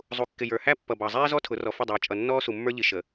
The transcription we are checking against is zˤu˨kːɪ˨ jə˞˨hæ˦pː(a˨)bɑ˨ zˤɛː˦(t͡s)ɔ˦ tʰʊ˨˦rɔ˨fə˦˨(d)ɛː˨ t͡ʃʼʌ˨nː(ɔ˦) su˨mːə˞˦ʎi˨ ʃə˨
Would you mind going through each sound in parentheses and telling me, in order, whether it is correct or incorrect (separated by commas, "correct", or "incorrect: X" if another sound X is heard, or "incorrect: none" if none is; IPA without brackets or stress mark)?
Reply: incorrect: ʌ˨, incorrect: z, incorrect: dˤ, incorrect: ɔː˦